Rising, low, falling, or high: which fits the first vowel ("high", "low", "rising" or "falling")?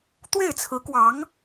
falling